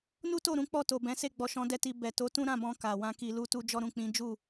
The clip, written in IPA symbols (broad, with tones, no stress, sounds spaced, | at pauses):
n u˦ t o˦˨ ɾ ũ˨˦ k͡p ɔ˦˨ t o˨ b ɛ̃˨˦ s e˦˨ ɡ͡b ɔ˨ ʃ ɔ̃˨˦ d ɛ˦ t i˧ b ɛ˨ t o˨˦ t ũ˦ ɾ ã˦˨ b ɔ̃˧ k a˨ w ã˧ k i˨ l u˧ t u˧ d͡ʒ ɔ˧ ɾ ũ˨ k͡p ĩ˨˦ d͡ʒ u˦˨